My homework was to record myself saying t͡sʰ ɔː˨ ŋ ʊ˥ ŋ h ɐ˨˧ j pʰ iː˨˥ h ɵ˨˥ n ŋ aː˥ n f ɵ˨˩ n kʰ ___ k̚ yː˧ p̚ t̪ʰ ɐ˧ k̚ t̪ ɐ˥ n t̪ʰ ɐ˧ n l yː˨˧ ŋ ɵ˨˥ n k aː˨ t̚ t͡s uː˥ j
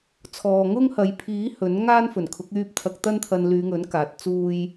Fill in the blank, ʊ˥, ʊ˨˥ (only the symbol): ʊ˨˥